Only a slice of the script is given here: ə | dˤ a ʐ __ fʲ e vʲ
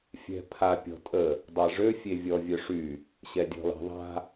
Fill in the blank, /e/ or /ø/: ø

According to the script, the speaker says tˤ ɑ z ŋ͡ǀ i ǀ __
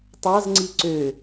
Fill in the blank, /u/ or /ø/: ø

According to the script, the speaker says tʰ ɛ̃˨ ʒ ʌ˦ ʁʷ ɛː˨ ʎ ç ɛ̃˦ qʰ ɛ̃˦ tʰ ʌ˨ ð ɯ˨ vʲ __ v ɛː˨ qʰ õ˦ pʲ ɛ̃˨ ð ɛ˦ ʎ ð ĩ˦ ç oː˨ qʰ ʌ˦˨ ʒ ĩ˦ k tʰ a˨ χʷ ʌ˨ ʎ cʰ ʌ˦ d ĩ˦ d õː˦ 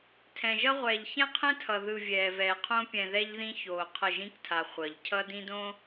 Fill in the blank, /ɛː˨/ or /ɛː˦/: ɛː˨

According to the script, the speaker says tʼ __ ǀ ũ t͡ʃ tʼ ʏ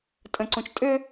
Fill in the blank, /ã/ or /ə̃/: ə̃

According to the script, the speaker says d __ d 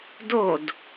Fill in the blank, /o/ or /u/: o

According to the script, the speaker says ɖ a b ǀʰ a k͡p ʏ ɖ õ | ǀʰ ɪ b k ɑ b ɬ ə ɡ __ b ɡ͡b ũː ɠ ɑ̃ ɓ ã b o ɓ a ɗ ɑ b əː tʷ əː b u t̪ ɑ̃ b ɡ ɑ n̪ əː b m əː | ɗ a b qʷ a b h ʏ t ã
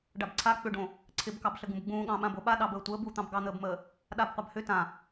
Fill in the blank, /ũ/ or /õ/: ũ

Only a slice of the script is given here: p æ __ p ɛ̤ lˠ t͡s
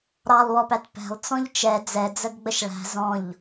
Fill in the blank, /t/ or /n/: t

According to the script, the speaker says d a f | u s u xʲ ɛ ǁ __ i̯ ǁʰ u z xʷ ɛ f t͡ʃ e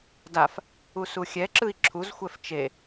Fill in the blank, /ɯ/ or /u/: ɯ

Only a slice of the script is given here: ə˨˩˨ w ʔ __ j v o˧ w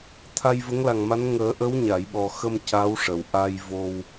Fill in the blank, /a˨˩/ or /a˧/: a˧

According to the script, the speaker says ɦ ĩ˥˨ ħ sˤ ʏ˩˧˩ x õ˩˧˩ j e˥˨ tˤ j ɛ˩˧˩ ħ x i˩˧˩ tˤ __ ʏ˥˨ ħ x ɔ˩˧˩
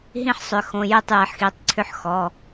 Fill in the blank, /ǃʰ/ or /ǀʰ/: ǀʰ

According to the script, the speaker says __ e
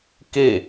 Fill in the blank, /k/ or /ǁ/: k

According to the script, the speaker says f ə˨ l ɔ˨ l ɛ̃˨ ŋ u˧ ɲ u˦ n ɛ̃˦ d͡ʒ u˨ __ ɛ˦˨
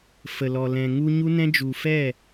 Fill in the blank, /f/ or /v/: f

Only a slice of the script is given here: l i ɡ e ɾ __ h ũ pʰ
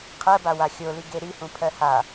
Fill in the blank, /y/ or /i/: i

